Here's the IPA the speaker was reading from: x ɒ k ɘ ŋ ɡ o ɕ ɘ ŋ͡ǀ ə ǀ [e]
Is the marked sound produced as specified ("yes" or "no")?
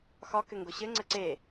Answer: yes